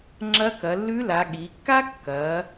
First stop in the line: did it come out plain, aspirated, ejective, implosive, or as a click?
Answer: click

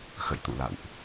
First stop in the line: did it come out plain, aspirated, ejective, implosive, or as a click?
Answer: plain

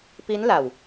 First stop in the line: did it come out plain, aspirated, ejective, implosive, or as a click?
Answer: plain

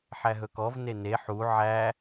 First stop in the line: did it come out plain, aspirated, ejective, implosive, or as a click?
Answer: plain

